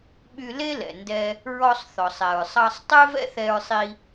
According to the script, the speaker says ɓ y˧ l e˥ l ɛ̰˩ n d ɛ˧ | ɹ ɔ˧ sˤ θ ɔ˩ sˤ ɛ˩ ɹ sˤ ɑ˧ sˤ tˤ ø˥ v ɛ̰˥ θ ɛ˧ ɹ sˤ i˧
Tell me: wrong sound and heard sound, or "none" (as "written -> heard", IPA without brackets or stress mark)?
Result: none